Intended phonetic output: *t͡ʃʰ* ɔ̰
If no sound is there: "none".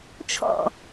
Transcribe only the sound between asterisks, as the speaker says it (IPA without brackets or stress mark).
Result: t͡ʃʰ